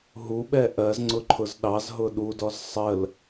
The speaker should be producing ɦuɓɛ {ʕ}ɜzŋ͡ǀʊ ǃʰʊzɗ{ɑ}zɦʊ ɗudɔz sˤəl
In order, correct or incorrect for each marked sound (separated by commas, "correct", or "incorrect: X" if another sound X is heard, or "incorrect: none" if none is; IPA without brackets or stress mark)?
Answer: incorrect: ʔ, correct